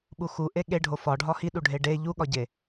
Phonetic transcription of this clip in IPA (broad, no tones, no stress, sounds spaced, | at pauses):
ɓ u x u ʔ e ɠ e ɖʱ o f ɒ ɖʱ ɒ h i ɗ u ɖʱ e ɖ e ʎ u ɠ ɒ ɟ e